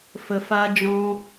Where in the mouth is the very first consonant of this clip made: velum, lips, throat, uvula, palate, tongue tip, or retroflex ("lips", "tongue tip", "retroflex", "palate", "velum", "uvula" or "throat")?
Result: lips